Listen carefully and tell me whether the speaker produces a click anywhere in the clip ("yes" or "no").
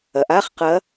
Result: no